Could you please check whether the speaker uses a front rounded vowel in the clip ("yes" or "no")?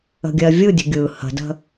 no